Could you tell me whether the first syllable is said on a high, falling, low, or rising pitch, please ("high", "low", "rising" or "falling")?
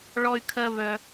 high